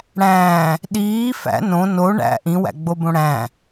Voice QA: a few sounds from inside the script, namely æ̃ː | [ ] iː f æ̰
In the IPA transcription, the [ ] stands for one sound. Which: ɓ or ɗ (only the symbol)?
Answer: ɗ